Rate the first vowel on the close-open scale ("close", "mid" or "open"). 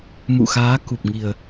close